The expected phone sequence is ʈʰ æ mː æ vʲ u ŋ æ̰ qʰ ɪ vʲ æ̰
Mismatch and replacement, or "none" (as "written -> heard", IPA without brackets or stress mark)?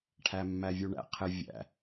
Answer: ŋ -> ɳ